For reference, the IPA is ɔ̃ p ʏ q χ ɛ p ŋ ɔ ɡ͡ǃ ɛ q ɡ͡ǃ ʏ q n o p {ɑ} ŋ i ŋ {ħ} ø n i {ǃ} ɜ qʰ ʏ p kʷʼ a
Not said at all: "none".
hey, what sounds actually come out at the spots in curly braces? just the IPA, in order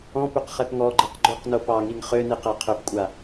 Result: ɑ, χ, q

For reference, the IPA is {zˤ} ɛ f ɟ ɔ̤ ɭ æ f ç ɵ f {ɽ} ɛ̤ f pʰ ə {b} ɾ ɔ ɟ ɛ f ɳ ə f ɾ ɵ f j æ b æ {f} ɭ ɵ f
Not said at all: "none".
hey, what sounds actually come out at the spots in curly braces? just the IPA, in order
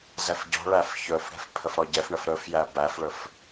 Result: z, ɽ, f, f

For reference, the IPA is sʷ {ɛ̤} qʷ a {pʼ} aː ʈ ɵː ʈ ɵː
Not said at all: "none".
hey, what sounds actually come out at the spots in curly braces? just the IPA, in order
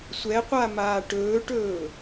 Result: ɛ, m

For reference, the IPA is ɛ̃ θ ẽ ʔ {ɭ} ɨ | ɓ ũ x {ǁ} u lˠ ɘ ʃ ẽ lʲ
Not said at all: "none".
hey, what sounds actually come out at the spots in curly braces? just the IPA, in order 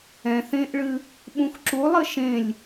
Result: ɭ, ǁ

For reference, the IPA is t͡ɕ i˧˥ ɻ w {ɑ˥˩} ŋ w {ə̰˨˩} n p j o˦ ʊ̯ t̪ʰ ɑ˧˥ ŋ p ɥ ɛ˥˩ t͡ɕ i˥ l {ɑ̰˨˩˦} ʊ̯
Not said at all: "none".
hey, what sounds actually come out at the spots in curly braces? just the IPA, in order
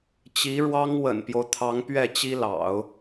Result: ɑ˥, ə̰˨˩, ɑ̰˨˩˦

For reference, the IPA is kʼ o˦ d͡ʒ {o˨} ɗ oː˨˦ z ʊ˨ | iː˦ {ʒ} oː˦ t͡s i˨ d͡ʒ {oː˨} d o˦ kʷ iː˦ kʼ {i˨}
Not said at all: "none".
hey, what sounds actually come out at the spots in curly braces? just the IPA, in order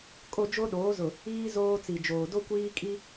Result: o˦, z, oː˨, i˦

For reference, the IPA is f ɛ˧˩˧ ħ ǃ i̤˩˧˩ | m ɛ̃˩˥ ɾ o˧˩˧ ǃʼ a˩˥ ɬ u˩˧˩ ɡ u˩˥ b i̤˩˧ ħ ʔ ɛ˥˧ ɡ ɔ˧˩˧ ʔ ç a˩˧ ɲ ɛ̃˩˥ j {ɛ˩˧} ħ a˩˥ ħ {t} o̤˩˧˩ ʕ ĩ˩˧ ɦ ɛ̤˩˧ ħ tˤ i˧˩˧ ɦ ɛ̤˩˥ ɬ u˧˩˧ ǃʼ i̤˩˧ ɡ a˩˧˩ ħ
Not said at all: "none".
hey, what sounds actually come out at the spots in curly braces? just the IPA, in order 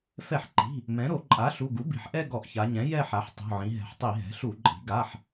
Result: ɛ˥˧, tˤ

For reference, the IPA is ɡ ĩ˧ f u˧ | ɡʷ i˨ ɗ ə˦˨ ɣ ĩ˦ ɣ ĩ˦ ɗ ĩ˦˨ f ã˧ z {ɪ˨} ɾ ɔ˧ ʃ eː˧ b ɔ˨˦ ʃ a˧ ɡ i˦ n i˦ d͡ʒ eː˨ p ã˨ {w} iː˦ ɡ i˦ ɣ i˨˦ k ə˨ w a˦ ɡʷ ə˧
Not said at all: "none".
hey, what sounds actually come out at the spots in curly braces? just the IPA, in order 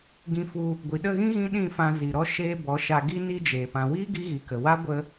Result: i˨, w

